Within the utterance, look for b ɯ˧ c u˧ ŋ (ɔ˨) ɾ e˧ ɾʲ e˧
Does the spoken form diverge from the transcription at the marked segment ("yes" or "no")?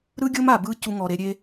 no